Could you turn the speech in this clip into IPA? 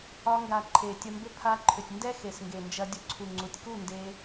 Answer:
ɒ˧ ŋ ɡ a˨ ǃʰ e˨ tʲ ɐ˧ m b ʏ˦ pʰ a˧ ǃʰ ʏ˨ tʲ n d ɛ˦ x e˨ s ŋ ɡ e˨ n d͡ʒ ɐ˧ dʲ ʊ˧ ǀʰ u˨ ŋ͡ǀ u˨ tʲ k u˦˨ n d e˧

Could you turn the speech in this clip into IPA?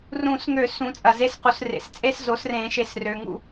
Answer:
r ũ˨˩˦ s ŋ ø˨˩˦ s ũ˩˥ t͡sʼ ɐ˨ z e˦˥ s q u˨ s r ḛ˨ s t͡sʼ e˥˧ s z o˩˥ s r ẽ˨˩˦ ʃ e˨˩˦ s r ø˨ ŋ ṵ˥˩

